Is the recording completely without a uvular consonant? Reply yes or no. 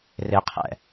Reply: no